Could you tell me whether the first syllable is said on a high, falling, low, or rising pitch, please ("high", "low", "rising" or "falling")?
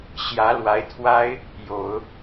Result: rising